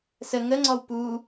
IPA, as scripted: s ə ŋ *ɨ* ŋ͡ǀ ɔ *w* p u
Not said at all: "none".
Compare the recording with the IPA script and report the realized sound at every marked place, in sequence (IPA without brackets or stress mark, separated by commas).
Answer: ə, w